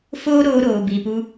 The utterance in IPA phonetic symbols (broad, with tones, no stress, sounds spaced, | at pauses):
f oː˦ ɾ oː˧ ɾ oː˨ b i˨ p u˧